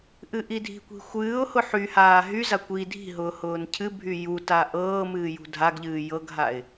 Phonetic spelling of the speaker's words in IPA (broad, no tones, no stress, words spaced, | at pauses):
ʔɨʔidʱi̤kʷi̤ xʷɨːʊ̯hʊ ħyhaː ɦyza kʷi dʱi̤ɦʊː hʊːncʰɨbʱy juta ʔɤː mɨːjṳdʱaɡʎɨː jɤɡɦaɪ̯